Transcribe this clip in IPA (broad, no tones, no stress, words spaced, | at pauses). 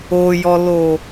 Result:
ojɔlo